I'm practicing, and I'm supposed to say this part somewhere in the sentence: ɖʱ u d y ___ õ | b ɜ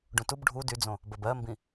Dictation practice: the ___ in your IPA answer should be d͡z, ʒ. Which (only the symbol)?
d͡z